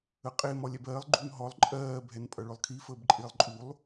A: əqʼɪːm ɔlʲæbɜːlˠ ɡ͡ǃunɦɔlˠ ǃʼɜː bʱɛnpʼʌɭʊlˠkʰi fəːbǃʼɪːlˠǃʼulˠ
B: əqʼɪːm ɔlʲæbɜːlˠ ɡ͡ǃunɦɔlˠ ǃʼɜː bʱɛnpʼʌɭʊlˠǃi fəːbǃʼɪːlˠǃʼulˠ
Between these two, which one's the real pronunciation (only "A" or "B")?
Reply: A